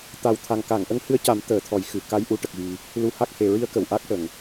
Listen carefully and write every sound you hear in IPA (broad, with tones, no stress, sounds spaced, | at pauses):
t̪ a˨˩ w t̪ʰ a˨˩ ŋ k a˨˩˨ ŋ ʔ ə˧˥ ŋ h ɨ˧˥ ə̯ c a˨˩˦ m t̪ əː˨˩˨ t̪ʰ ɔ˨˩˦ j x ɨ˨˩˨ k a˧˥ j ʔ u˧˥ ʈ ə˨˩ k̚ ɣ i˨˩ | l u˧˥ h a˦˥ k̚ h e˨˩ ɹ i˧˥ ə̯ k ə˨˩˨ w ʔ a˦˥ k̚ ʈ ə˨˩˨ ŋ